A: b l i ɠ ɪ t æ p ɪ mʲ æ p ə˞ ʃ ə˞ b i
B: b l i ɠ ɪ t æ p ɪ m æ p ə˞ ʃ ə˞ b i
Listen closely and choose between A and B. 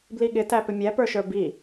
A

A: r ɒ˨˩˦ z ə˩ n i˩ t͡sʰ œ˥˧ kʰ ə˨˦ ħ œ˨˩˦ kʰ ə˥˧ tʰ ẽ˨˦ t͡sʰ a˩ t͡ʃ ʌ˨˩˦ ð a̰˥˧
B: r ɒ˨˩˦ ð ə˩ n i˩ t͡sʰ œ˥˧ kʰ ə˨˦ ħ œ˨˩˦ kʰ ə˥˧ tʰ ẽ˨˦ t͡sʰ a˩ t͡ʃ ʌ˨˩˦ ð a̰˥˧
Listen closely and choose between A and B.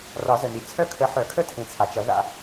A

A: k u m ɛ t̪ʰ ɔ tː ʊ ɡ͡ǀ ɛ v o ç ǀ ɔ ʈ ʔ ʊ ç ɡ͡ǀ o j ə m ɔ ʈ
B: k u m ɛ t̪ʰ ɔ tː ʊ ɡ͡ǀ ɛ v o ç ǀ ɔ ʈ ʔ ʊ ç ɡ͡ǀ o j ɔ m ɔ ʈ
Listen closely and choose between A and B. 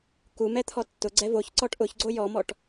B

